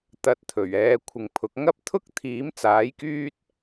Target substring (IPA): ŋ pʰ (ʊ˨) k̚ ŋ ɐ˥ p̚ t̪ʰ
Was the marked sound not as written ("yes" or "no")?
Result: yes